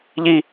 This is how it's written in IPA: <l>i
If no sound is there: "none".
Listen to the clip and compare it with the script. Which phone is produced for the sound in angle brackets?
ʎ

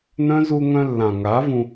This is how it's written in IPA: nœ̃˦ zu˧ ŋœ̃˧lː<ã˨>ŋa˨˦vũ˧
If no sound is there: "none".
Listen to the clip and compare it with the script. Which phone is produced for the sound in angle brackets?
ã˨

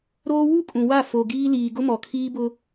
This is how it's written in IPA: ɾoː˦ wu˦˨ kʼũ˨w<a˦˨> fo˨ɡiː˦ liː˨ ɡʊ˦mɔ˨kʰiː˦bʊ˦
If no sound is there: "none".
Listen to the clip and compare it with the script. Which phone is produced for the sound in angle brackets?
a˦˨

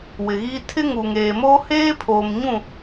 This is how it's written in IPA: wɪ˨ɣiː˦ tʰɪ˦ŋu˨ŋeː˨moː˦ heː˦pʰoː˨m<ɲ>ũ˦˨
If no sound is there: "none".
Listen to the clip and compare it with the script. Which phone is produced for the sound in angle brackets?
ɲ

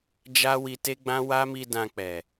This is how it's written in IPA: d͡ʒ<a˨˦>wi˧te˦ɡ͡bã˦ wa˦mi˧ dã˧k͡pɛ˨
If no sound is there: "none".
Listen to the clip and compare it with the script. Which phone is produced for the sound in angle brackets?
a˦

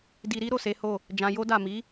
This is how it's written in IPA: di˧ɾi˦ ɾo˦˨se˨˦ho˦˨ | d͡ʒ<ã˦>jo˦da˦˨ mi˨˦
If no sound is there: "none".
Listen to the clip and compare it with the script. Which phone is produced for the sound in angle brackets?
ã˧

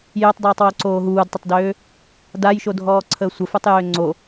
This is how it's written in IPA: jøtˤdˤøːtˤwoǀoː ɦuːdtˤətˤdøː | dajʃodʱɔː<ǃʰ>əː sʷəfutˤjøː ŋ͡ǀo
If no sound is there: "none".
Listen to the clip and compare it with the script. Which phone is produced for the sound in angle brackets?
ǀʰ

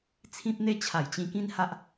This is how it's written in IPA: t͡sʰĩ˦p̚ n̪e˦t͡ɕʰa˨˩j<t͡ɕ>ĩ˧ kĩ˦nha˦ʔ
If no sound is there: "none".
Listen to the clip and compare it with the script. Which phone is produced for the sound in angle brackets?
t͡ɕ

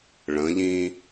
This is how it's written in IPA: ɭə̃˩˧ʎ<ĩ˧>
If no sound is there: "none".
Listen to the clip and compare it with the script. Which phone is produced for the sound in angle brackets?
ĩ˧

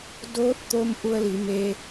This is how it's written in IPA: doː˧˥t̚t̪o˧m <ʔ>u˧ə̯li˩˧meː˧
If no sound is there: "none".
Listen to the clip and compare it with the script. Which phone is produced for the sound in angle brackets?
ʔ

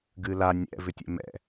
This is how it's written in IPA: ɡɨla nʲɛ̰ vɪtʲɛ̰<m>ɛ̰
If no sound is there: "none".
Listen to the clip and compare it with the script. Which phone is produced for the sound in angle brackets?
m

